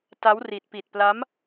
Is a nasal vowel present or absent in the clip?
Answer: absent